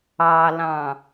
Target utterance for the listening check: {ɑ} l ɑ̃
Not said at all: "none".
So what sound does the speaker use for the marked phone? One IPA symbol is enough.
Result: ɑ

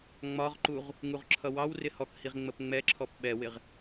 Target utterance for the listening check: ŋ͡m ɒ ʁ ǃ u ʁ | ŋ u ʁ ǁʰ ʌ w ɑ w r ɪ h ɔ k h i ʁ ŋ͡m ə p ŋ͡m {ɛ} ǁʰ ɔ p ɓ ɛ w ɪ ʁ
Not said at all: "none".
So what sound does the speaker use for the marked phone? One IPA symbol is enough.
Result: ɛ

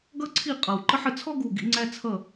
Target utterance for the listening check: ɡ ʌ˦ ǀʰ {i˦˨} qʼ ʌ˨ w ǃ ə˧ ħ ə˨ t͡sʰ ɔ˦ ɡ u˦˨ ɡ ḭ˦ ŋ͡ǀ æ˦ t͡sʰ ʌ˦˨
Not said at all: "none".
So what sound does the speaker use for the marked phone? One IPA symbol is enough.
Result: i˦˨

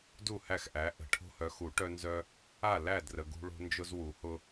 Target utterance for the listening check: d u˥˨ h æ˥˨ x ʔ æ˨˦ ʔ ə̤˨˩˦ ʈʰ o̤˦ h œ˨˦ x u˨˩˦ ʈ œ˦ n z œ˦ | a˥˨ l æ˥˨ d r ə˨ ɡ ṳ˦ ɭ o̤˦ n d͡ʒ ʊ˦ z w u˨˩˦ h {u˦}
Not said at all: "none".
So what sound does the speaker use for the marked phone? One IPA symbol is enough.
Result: ʊ˦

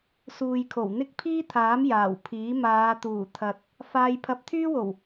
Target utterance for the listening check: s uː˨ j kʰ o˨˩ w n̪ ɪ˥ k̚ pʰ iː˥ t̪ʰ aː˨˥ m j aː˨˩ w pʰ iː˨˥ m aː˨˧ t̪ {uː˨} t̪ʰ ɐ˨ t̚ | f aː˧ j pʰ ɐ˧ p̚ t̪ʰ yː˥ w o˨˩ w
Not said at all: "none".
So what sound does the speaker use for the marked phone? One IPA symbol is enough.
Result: uː˨˩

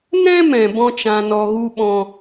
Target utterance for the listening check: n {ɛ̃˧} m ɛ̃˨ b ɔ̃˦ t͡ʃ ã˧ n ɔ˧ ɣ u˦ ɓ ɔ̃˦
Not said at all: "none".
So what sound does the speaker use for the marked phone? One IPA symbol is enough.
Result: ɛ̃˦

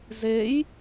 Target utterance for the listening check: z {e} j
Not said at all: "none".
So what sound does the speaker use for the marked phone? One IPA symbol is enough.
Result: e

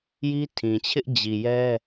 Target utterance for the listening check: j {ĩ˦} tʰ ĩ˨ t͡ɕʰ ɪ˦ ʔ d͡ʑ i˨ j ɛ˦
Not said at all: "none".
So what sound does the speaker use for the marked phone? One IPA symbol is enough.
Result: i˦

